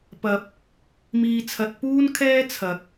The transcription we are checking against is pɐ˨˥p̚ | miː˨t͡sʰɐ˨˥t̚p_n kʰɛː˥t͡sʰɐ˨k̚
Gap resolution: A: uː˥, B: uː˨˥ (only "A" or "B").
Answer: A